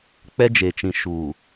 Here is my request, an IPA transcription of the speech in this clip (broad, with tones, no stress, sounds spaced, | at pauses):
k͡p ɛ˦ d͡ʒ e˨ t͡ʃ ĩ˨ ʃ uː˨